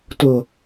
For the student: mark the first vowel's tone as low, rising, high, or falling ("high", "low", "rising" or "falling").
low